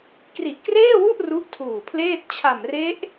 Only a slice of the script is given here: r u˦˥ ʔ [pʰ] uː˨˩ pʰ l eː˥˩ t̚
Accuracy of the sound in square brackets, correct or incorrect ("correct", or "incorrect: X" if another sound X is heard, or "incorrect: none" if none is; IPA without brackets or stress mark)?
incorrect: tʰ